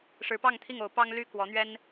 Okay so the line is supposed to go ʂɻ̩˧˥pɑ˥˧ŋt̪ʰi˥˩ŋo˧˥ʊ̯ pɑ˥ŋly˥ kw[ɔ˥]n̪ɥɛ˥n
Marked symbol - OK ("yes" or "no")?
no